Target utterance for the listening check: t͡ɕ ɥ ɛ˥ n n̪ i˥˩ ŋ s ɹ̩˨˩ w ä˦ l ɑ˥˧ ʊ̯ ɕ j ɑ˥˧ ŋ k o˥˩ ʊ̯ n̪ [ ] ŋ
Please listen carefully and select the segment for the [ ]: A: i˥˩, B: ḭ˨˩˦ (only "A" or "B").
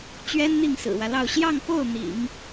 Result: B